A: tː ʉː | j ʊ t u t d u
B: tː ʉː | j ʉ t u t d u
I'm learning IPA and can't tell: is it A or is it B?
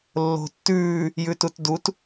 B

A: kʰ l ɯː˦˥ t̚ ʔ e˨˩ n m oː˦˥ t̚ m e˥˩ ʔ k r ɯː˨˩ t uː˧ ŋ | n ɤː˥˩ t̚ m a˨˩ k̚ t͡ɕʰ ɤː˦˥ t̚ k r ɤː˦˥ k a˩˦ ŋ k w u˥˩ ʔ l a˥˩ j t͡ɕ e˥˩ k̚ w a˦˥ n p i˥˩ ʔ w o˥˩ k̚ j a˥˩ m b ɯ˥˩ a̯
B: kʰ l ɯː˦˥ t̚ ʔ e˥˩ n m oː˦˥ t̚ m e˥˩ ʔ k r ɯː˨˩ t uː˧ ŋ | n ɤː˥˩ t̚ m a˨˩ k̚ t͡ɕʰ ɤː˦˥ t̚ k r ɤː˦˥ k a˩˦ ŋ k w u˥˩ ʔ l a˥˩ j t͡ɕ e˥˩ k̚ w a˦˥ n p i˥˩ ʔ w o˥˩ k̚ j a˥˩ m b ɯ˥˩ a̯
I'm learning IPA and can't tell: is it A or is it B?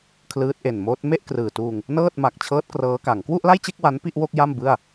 A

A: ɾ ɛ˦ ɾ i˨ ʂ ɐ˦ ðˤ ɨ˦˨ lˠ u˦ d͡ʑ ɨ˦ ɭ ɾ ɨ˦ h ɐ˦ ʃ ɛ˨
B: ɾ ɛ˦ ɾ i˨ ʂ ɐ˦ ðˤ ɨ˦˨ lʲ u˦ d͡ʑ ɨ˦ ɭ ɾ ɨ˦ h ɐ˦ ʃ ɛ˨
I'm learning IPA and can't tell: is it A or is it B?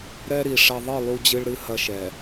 A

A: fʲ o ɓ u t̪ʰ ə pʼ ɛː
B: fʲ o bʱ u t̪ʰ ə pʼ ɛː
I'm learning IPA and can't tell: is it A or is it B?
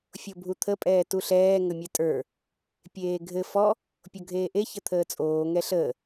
B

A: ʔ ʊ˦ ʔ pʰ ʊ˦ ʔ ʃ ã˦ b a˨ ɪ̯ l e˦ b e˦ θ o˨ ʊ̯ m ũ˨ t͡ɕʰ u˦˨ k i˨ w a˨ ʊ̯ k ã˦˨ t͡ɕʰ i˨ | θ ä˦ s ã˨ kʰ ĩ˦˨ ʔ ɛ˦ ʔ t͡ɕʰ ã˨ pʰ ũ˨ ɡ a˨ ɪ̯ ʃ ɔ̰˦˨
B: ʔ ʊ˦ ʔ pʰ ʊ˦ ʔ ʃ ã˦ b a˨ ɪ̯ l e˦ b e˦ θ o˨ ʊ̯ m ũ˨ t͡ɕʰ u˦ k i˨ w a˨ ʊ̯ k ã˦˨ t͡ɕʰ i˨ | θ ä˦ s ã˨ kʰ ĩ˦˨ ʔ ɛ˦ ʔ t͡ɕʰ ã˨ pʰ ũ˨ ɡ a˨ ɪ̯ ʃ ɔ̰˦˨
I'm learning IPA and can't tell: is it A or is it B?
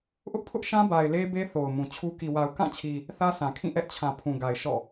B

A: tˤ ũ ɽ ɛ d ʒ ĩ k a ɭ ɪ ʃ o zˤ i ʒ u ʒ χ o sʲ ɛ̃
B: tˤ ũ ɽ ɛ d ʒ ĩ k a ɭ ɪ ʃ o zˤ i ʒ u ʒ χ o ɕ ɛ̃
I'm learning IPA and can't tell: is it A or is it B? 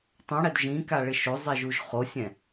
A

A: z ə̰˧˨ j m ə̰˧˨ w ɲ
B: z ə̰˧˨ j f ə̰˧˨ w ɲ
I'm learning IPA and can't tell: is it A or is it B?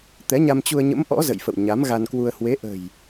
B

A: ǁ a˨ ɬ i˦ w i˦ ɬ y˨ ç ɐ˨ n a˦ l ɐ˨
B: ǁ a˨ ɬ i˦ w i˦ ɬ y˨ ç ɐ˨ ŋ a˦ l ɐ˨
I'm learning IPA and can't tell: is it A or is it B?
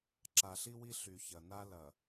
A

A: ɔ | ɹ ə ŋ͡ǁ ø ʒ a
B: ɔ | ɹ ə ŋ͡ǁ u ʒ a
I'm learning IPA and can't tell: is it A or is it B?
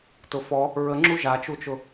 B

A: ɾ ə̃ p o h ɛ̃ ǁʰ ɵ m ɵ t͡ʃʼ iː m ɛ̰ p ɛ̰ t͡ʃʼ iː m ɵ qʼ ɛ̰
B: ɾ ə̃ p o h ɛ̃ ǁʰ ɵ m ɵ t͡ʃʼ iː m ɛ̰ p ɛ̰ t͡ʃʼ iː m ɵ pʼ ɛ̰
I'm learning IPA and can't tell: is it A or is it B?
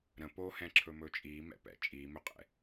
A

